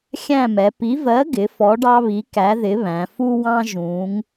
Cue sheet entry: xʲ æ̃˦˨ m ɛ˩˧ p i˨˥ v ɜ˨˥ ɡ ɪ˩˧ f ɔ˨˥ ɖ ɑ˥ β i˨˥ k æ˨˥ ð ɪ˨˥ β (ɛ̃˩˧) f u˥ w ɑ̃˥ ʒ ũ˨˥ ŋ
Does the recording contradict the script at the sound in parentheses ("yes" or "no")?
yes